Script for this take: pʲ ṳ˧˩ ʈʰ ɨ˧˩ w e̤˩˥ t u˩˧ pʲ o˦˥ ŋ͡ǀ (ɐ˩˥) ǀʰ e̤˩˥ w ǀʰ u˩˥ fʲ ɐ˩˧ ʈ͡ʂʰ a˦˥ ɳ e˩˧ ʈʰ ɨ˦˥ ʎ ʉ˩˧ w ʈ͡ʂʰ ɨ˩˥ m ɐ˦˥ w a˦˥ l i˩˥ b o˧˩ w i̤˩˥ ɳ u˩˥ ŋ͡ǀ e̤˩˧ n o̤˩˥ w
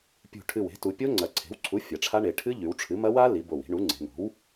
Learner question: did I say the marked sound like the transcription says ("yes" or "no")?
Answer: no